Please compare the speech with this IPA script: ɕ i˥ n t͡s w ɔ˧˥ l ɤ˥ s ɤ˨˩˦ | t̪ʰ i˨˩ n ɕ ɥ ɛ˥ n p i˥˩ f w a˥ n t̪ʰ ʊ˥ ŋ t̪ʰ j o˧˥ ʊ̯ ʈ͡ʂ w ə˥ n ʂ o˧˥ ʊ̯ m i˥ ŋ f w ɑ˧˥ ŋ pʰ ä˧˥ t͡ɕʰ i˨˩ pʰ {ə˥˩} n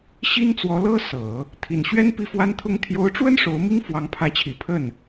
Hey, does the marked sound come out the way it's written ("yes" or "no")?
yes